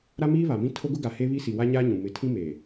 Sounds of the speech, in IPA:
ɾa˦miː˦ βa˨mĩ˦ tʰo˦ɡʊ˦ɡa˨ heː˦βi˦si˨ wa˦ɲaː˦ ɲũ˨ mɪ˨tʰĩ˦ meː˨

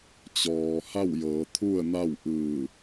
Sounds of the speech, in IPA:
t͡ɕɔː˩ ha˥˨wjɤː˩˧t̪ʰu˥˨ə̯ na˥˨w ʔɯː˧˩

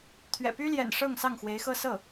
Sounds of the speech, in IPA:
t̪ʰɥɛ̰˨˩py˥ljɛ̰˨˩n ʂɤ˥˧ŋ sɑ˥˩ŋxwe˧˥ɪ̯xɤ˥sɤ˥˩

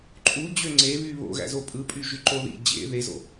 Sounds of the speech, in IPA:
ǃʼu d͡ʑøŋ͡ǀeβy βo̰ɣæ̰zo pʼɯpʼy ʒyǃoðḭ d͡ʑḛ ðezo̰

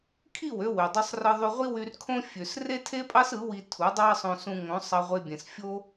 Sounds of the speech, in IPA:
kʰi˦˨wø˧ wø˨dˤø˧sˤrɯ˧ ðˤy˧ʁʷi˦wy˧rkʰõ˦ fʲø˨s re˦tʰe˦pʼɑ˦s ɯ˨˦wi˧ tʰu˨˦dˤɑ˦sˤõ˧ sũ˧ŋõ˨˦ sˤɑ˧ʁʷe˧bʲẽ˨sfʲo˦

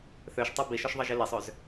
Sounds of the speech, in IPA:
θøʃtˤɤ biʃɔʃðˤɤʒi lesˤøz

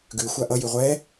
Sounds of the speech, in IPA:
ɡʉ xʷaʔʌ jʉʁʷɛ

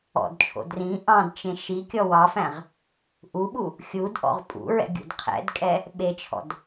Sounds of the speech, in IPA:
ɔ̰dt͡ʃʰo̰ drĩ ʔɑ̃dt͡ʃẽ ʃi kʲɔwɑfæ̃ʁ | ʔuɓu | xʲudʔɔ̰ʁ pʼṵɹɛ̰ ɡʲṵdqʰɛ̰dkʼɛ | ɓet͡ʃʰɔ̰d

